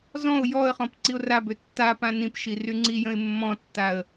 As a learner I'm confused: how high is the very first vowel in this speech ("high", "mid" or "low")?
mid